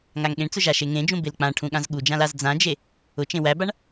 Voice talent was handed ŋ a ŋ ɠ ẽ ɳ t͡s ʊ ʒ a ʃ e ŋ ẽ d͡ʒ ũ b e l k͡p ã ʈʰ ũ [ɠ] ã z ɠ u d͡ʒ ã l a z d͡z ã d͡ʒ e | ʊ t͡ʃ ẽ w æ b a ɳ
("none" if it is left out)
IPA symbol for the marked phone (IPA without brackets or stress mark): ɠ